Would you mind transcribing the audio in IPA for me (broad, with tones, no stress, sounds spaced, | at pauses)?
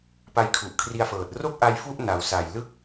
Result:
p a˧ j kʰ u˨˩ ʔ kʰ r i˧ a̯ f ɤː˨˩ t̚ r o˥˩ k̚ ʔ a˧ j f u˥˩ ʔ n a˩˦ w s a˨˩ j l ɯ˥˩ k̚